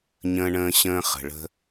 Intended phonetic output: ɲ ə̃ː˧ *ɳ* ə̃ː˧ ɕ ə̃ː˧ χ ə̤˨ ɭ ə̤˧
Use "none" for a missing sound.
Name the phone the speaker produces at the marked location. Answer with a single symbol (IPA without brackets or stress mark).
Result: ɳ